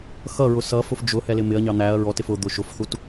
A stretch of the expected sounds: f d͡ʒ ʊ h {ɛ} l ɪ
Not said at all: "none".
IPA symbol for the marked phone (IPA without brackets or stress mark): ɛ